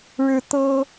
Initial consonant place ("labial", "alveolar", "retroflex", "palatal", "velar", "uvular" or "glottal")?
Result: retroflex